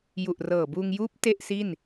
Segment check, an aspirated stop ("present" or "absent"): absent